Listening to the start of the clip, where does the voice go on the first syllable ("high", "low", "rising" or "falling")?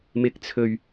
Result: rising